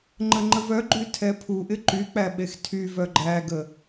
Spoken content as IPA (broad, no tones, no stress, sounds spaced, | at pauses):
ŋ͡ǃ ə ŋ͡ǃ ə v œ ɡ͡ǃ y tʰ ɛ pʰ u ʔ ɪ ǃ y k͡p æ ɓ e x tʰ y v œ ɡ͡ǃ æ ɡ ə